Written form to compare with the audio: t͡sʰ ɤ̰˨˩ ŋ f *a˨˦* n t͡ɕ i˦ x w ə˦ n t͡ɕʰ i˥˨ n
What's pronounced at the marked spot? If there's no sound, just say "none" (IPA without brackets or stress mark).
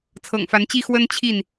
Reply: a˨˦